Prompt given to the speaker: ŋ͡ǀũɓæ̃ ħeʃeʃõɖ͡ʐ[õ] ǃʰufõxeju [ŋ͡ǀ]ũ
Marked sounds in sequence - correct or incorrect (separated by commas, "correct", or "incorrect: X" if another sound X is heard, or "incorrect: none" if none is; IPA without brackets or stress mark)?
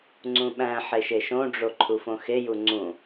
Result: incorrect: o, correct